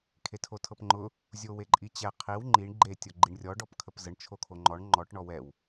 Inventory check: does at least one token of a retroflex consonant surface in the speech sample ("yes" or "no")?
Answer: yes